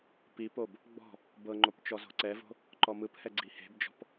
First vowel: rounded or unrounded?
unrounded